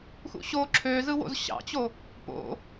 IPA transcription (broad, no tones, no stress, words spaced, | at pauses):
xṵɕo ǁʰøzɯwo̰z ɕɑ̰t͡ɕo | po̰